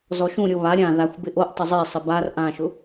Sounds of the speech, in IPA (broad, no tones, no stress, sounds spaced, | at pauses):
z ɔ ʃ ũ ɾʲ o β a ɾʲ ã ð a xʷ b ɪ ʔ o ʔ tˤ ʊ zˤ i sˤ ɪ b a r ʔ ã ʃ ʊ